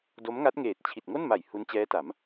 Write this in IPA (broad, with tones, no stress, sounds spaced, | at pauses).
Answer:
d o˦˥ m ŋ a˦˥ t̚ ŋ eː˨˩ t̚ t͡ɕʰ i˨˩ t̚ ŋ o˥˩ n m a˨˩ j h u˦˥ n t͡ɕ ɛː˦˥ t a˩˦ m